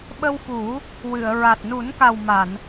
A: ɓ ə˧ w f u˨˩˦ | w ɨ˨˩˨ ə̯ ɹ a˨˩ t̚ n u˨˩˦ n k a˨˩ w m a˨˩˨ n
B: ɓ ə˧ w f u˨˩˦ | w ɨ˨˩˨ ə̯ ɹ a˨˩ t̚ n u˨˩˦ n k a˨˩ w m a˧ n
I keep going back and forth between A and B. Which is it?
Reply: A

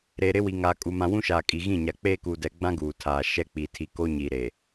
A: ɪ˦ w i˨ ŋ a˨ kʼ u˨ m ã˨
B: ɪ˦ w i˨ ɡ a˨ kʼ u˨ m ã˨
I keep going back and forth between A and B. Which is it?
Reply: A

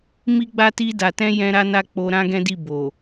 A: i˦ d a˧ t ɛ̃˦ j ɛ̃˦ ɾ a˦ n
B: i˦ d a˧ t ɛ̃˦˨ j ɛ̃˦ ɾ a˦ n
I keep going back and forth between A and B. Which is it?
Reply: A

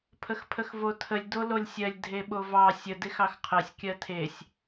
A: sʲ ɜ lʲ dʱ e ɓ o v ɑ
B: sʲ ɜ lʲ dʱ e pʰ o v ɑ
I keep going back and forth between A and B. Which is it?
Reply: A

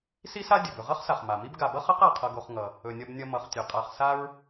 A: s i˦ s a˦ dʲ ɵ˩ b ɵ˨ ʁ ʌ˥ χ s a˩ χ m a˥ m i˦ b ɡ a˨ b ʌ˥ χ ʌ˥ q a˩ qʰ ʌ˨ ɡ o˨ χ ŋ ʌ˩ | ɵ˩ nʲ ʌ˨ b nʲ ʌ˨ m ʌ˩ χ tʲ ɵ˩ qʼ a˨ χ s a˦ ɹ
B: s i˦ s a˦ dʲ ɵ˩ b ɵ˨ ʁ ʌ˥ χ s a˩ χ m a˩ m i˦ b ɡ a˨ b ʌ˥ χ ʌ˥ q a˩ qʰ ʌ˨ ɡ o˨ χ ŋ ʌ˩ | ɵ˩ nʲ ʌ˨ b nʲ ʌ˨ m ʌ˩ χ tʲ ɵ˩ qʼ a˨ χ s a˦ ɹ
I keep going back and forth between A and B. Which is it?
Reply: B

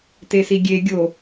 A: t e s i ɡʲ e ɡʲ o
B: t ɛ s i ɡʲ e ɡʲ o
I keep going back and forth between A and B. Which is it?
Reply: A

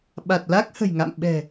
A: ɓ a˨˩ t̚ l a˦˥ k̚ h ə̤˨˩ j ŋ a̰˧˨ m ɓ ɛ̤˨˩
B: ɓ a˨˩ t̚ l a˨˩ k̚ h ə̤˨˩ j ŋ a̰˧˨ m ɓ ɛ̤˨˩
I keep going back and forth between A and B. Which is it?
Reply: A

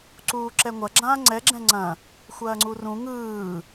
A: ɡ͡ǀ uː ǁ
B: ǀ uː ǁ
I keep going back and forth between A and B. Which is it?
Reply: B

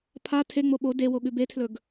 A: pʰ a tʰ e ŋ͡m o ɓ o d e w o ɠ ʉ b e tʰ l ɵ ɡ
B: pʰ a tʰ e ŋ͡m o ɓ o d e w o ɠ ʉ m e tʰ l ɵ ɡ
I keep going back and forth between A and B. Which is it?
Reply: A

